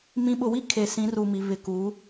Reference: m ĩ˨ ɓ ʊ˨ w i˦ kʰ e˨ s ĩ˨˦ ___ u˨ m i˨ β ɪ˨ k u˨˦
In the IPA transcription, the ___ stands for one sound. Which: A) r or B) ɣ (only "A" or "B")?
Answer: A